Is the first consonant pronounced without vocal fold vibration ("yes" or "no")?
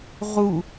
no